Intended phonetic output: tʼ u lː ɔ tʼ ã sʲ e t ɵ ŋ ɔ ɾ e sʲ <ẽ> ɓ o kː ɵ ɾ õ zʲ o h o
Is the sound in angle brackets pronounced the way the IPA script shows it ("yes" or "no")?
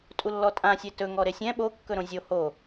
no